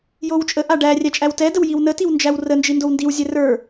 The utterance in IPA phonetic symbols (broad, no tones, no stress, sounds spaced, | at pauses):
j o w t͡ʃʼ ə ʔ a ɖ æ rʲ æ t͡ʃʼ æ w t ɛ d ə w j i w n ə t i w n d͡ʒ æ w r ə n d͡ʒ i n d o w n d i w zʲ ɛ r ə˞